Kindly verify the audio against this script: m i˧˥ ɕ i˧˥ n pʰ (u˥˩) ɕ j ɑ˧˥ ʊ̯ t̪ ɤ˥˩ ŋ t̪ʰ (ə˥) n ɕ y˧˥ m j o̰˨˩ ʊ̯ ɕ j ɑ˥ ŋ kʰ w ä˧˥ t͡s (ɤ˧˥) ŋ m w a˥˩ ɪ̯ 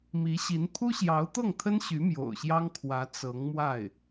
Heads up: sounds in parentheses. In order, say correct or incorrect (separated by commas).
incorrect, correct, correct